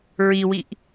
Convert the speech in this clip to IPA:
ɹ i w i ʔ

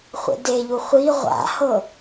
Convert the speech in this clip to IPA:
χʷ ḛ d e ʎ u χʷ i ʁʷ a̰ h ɤ

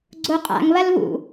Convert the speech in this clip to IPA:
ɡ͡ǀ o qʼ a̰ ŋ β ɐ l β ṵ

